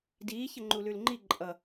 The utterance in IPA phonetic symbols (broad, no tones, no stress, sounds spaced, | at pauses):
d iː ç ə ŋ͡ǃ u l ʉ l ŋ͡ǃ i ǃʼ ʌ